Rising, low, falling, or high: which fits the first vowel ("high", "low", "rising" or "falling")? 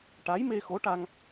rising